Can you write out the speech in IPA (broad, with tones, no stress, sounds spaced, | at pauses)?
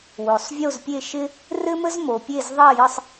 w o˨˩ sˤ vʲ o˥˧ z pʲ e˥˧ ʃ ɪ˥ | r ɘ˥ m ə˥ z m o˨˦ pʲ e˥˧ z ðˤ ɐ˥˧ j ə˥˧ sˤ